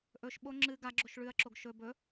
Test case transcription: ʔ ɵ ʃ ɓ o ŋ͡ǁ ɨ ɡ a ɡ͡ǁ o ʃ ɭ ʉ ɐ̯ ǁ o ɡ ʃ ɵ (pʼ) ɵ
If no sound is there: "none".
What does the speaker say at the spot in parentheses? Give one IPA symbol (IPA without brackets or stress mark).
b